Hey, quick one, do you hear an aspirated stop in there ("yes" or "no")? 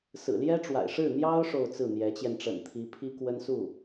yes